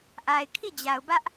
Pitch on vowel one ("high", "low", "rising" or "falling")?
low